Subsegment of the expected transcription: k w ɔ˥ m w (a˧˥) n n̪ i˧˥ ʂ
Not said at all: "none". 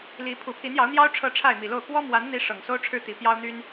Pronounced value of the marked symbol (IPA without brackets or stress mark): a˧˥